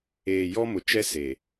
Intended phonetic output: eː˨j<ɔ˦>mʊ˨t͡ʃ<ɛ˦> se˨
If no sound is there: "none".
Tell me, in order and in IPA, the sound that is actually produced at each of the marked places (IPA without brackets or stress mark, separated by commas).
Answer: ɔ˦, ɛ˦